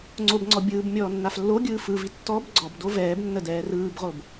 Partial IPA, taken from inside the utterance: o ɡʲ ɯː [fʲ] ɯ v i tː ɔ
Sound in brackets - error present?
yes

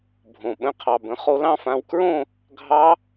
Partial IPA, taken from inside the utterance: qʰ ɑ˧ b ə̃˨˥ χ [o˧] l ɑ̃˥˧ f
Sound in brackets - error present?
no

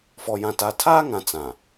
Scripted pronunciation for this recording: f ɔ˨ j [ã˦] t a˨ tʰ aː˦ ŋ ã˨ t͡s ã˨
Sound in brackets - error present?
yes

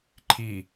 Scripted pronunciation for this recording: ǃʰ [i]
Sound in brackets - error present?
no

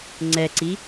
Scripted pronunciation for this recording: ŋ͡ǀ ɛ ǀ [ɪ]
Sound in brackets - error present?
yes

